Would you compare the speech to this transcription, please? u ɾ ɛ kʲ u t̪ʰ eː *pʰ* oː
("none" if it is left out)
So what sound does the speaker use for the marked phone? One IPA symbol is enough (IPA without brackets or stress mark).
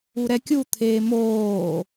m